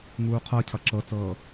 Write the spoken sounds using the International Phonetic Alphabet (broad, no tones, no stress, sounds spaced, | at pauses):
ŋ uː qʰ ɤ cʰ ʌ ǁ ɤ t͡s ɤː